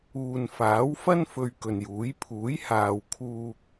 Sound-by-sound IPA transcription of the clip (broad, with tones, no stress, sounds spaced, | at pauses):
uː˨ n f aː˨˥ w f ɐ˥ n f ɵ˨ ɥ k ɵ˨ n j uː˨˥ j pʰ uː˨˥ j h aː˨ w kʰ uː˧ k̚